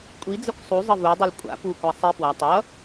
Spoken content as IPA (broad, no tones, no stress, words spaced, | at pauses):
kʷʼid͡zəkʷ sˤuzˤə vudˤil kʷʼa̰ pukʷa sˤi pwa tˤʌ